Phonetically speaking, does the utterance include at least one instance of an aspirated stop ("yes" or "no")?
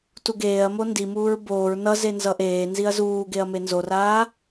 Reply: no